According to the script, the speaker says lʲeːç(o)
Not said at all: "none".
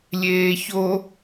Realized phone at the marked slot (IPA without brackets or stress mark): o